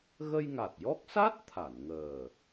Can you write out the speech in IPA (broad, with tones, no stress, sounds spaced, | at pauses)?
ɣ ə˧ j ŋ a˨˩ t̚ j ɔ˦˥ k̚ s a˦˥ t̚ t̪ʰ a˨˩˨ n ŋ əː˨˩